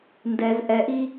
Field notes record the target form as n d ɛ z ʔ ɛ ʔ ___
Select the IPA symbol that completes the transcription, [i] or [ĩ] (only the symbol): i